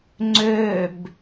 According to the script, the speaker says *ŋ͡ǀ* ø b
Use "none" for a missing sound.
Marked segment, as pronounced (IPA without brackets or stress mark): ŋ͡ǀ